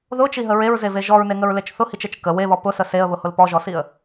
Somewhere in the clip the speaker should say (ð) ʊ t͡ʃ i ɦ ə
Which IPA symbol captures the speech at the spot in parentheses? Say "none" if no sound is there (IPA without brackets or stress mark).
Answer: ð